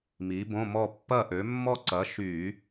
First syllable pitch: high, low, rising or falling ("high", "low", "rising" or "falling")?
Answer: rising